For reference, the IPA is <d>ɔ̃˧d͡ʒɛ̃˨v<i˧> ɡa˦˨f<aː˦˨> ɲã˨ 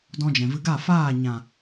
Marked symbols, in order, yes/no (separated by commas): yes, no, yes